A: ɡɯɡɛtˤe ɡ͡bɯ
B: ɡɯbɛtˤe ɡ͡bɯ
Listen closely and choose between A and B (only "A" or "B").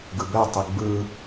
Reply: B